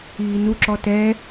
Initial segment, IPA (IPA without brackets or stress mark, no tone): iː